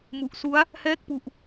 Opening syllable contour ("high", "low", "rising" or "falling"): low